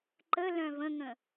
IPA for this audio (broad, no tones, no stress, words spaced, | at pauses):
ǃə lœ̃və̃ŋə̃